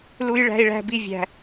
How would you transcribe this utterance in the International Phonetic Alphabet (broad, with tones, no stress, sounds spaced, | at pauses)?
l u˦ j ɭ æ̤˦ i̯ ɭ æ̤˦ b i˦ vʲ æ̤˦